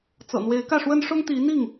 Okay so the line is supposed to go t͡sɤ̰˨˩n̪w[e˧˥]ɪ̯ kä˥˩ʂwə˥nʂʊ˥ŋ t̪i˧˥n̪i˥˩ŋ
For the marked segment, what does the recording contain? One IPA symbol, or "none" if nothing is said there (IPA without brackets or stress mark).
e˧˥